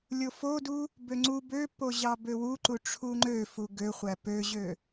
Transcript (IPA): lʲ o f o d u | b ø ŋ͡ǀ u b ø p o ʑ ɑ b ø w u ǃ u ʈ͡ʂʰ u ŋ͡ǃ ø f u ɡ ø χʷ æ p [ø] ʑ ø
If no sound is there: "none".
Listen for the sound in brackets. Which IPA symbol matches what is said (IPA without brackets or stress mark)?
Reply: ø